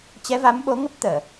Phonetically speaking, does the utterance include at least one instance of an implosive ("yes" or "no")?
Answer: yes